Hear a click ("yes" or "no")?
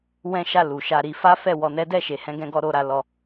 no